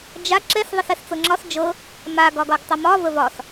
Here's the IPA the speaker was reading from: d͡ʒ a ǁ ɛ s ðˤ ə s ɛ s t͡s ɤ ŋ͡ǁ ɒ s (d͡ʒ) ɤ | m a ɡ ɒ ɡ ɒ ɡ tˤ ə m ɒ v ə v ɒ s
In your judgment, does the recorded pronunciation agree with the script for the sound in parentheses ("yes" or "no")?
yes